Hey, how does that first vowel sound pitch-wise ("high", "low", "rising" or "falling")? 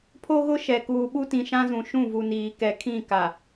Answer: high